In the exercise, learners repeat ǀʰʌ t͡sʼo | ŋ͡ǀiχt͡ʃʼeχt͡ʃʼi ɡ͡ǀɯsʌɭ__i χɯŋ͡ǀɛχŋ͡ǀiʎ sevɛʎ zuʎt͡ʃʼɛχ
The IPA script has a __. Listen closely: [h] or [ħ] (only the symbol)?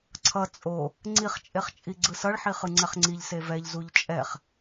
ħ